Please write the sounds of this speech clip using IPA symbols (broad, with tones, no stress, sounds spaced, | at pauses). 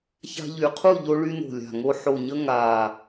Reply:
ç a̤˧ ʎ y˨˩ qʰ u˥˨ ʎ o˧ ɭ y˧ n o̤˨˩ lʲ a̤˨˩ ŋ o˧ ħ o˨˩ ɲ ə˧ ŋ a˨˩